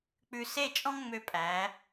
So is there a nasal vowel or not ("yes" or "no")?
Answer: yes